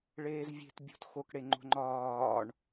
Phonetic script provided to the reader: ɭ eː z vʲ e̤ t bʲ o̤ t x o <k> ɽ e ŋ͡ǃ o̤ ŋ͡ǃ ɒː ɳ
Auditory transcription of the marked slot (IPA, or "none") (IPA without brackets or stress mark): k